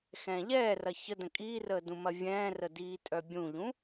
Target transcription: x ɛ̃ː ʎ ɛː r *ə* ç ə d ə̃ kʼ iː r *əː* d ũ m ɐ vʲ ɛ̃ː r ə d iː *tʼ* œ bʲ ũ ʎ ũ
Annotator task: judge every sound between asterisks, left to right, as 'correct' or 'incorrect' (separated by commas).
incorrect, correct, correct